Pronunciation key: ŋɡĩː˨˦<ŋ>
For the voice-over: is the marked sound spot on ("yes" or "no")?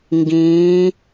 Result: no